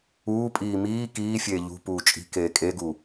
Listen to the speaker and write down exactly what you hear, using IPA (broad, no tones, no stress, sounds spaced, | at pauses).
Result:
uː pʼ iː m iː k iː fʲ eː ʎ ṳ p uː t͡ʃʼ i̤ k eː kʼ e ɡ u